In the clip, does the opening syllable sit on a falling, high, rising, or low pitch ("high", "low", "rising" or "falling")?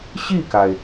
falling